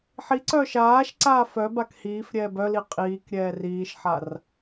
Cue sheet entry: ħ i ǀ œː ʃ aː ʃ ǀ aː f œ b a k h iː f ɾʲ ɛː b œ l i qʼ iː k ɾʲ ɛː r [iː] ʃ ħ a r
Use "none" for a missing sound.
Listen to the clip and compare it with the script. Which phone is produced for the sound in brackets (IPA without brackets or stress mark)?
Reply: iː